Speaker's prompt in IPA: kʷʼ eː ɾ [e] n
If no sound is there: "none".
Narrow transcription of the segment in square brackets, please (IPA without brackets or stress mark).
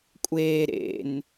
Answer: ḛ